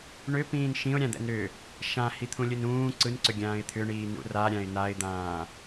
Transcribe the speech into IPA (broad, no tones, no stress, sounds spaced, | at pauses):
ɳ ʏ p ĩː n ʃ ĩ ʊ̯ ɾʲ ã d̪ ɛ̰ n ɾ ʏ | ʃ ã h i t̪ʰ ũ lʲ ɯ n ũː ǀ ɯ n ǀ ʏ ɡʲ ãː ɪ̯ t̪ʰ ʏ ɳ iː n ṵ r a ɾʲ ã ɪ̯ n a ɪ̯ d̪ ãː